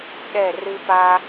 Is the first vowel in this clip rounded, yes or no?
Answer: no